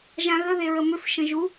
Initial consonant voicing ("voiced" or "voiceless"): voiced